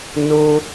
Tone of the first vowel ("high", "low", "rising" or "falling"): high